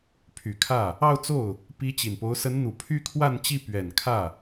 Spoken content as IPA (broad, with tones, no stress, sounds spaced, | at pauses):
pʰ y˨˩ kʰ ä˥˩ | ɑ˥˧ ʊ̯ t͡s o˥˩ ʊ̯ | p i˥ t͡ɕ i˨˩ n p o˧˥ ʊ̯ s ə˧˥ n n̪ u˨˩ pʰ y˥ kʰ w a˥˧ n t͡ɕ i˥˩ p ɥ ɛ˨˩ n kʰ ä˥˩